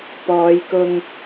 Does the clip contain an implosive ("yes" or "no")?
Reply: no